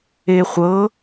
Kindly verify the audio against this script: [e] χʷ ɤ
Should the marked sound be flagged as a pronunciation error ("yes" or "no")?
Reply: no